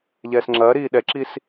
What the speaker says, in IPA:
ʎɛːsŋ͡ǁɐːɾiː ɗɛǁis

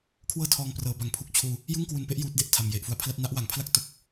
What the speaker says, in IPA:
kʰwɤː˥˩tʰɔː˧ŋprɤː˩˦ba˨˩ŋ pʰu˨˩k̚t͡ɕʰuː˧ | jɯ˥˩ŋkwu˧npe˥˩ʔ juː˦˥t̚de˨˩ʔtʰa˨˩m je˨˩ʔfu˨˩a̯pʰla˥˩t̚ na˦˥ʔwa˩˦ŋpʰla˥˩k̚ to˦˥k̚

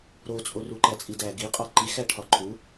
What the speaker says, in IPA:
ɾot͡sʼo ruǃæt͡sʼidæ ɡiqʼɒ ǃi xæʈʰɒǃʰu

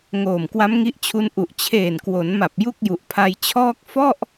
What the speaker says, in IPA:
ŋoː˨˩mkwa˦˥m ŋi˦˥ʔt͡ɕʰu˦˥nʔu˨˩ʔ t͡ɕʰeː˨˩nkwo˩˦nma˨˩p̚ ju˥˩k̚ju˨˩ʔpʰa˧j t͡ɕʰɔː˥˩k̚ fɔ˥˩ʔ

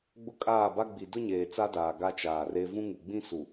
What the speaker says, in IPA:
ɡ͡bʊ˦kʼaː˦˨ba˦ ɡ͡bi˨ dʊ˦ɲeː˨ t͡sa˦daː˨ ɡa˦t͡ʃaː˨re˦ vũ˦ŋu˨ɡ͡bĩ˦ su˨

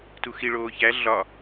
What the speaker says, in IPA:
tuxi ɭoːçæ ɮɒ

